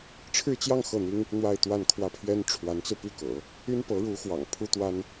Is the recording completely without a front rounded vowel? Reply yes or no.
no